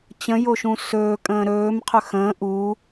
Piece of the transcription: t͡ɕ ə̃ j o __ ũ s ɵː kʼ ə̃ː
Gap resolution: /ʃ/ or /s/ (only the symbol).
ʃ